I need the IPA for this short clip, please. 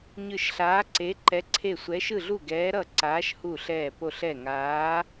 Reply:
ɲ ɯ˧˩ ʃ ɬ aː˨˦ ǀ e˨˦ ǃ ɛ˨˦ ǀʰ e˧˩ sʷ ɛ˨˦ ʃ ɯ˧˩ ɮ u˧˩ ɡ ɛː˨˦ ɾ ʌ˧˩ ǀ aː˨˦ ʃ h u˧˩ ɬ ɛː˧˩ p o˧˩ ɬ ɛ˧˩ ŋ aː˨˦

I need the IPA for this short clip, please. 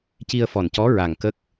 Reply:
c i˧ ə̯ f ɔ˨˩ n c ɔ˧˥ ɹ a˨˩ ŋ k ə˦˥ k̚

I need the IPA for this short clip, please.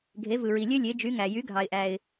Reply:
ɡʱ e˩˥ v ɯ˩ ɹ i˩ lʲ ø˥ lʲ e˩˥ d͡ʒ y˩˥ ŋ æ˩ j y˩˥ ɡʱ ɑ˩ ɪ̯ ʔ æ˩ ɪ̯

